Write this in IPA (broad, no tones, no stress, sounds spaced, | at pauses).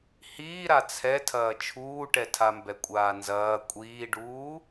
h iː ɾ a t͡sʰ ɛ tʰ ɐː t͡ʃʰ uː ʈ ɛ tʰ a m b ɛ kʷʼ aː n z ɐː kʷʼ iː ɖ uː